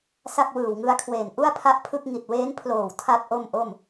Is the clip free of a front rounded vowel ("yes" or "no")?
yes